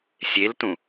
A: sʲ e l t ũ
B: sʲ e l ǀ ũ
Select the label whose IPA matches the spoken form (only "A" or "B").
A